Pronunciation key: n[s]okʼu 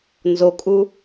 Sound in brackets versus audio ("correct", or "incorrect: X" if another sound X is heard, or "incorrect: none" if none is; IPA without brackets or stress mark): incorrect: z